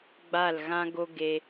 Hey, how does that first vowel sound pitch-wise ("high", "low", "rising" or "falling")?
falling